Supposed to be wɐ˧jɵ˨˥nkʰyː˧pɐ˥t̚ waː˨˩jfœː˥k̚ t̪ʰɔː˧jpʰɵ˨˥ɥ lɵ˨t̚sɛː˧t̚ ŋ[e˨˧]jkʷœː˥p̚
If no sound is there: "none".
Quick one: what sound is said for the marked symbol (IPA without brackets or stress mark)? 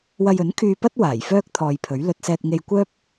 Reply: e˧